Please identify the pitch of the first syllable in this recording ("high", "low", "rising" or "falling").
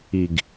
low